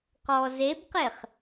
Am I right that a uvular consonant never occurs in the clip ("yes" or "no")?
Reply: no